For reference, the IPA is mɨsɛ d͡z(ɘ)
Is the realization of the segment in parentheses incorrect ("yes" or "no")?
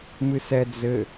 no